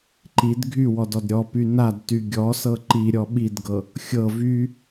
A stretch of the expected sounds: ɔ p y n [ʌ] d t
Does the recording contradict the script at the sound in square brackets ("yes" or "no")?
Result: yes